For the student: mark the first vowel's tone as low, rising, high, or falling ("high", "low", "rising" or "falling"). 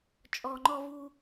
high